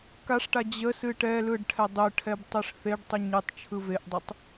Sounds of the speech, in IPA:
kaʂʈa d͡ʑə sɨʈɛlɯɖ ʈʰɛdˤɯʈʰɛb tˤɯʂθeɖtˤɨ ɲɨtˤ t͡ʃʰɯveʔdˤətˤ

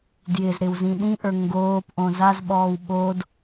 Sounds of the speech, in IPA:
djɪzɾɪːw zĩɗĩʔə˞ ŋɡoːpʔõ zazɓɔːw ɓod

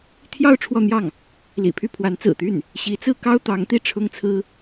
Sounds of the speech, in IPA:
t̪ʰjɑ˥˧ʊ̯ ʈ͡ʂʰwɔ˥˧n̪jɑ˥˩ŋ | lḭ˨˩pʰy˥˩pʰwa˧˥n t͡sɹ̩˨˩t̪y˥˩n | ɕi˧˥t͡sɹ̩˥ kɑ˥ʊ̯t̪ɑ˧˥ŋ t̪i˥˩ʈ͡ʂʰʊ˥ŋt͡sʰɹ̩˥

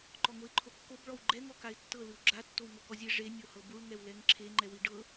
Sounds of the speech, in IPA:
ǃɔŋoɪ̯ǃʰokːob ɭɔwɡ͡ǃɛ ŋɔkaɪ̯tːɤ lɯwɡ͡ǁa tːowŋokɔzʲe ʐe nʲohɤbuɭ ŋɛwlɛŋǁʰe ŋ͡ǃɛwiɖɤ

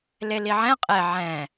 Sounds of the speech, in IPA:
leliʕɛ̃ qʼe ʕɛ̃

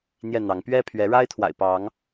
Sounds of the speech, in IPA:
n̪jɛ˥˨n̪ɑ˨˦ŋ pɥɛ˦pʰɥɛ˨˦ ɻa˦ɪ̯t̪ʰwa̰˨˩ɪ̯ pɑ˨˦ŋ

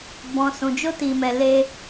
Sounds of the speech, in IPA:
bɔ̃˨sũ˨ d͡ʒo˧ti˨mɛ˨ le˧

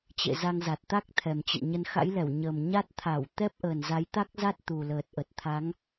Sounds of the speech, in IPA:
t͡ɕḛ˧˨za˧ŋ za˨˩t̚t̪a˦˥k̚t̪ʰɛ˨˩mt͡ɕə̰˧˨n ɲə˨˦nxa̰˧˥jlɛ˧˩w ɲə˨˩m ɲa˦˥t̚t̪ʰa˧˩w t̪ɛ˦˥p̚ʔə˨˩n za˨˦jt̪a˦˥k̚za˦˥t̚ t̪u˨˩ləː˨˩t̚ʔə˨˩t̚t̪ʰa˨˦ŋ

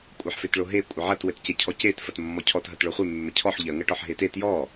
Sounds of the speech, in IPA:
kʷʼɐħfetɭoɦe kʷʼɘʕɐt wɘtcecʰɔcet fɐtmːɔcʰɔt ɦɐtɭoχʷe mːɘcʰɔħ ʎɐ ŋɐʈɔħɦete tjɔ

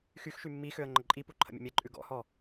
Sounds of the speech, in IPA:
xyxʃy mːixøə̯ ŋ͡ǃəǃʼipu ǃʰə̰mʲə̰mʲɛǃʼʉ ɡɔ̰hɔ

